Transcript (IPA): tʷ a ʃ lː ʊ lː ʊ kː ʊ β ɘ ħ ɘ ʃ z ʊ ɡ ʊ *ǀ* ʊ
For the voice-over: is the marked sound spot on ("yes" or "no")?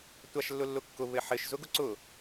yes